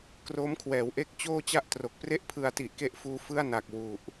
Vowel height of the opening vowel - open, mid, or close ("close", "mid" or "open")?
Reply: mid